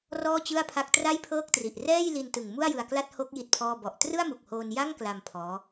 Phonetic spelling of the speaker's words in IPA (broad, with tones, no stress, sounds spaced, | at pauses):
r ɔː˥˩ t͡ɕ ɯ˥˩ a̯ pʰ a˦˥ k̚ t r a˥˩ j pʰ ɤː˥˩ k̚ t r i˨˩ ʔ r ɛː˥˩ j l i˧ n t ɯ˨˩ ŋ m u˥˩ a̯ j ɯ˧ a̯ k l a˥˩ t̚ h o˦˥ k̚ j i˥˩ t̚ pʰ ɔː˥˩ b ɔ˨˩ ʔ t r ɯ˥˩ a̯ m u˨˩ k̚ h oː˧ n j a˥˩ ŋ k l a˧ m pʰ ɔː˦˥